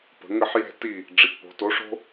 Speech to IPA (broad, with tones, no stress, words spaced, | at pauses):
pə̤˩˧ŋə˥˨ħjɛ̤˥˨ti˥˨ | ɖ͡ʐi˩˧tpo̤˩˧to˨˥ʂo̤˥